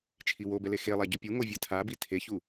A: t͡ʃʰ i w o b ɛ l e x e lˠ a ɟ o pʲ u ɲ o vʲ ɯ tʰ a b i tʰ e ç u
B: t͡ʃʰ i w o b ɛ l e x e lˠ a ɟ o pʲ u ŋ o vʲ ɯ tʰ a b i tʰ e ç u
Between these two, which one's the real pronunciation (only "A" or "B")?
B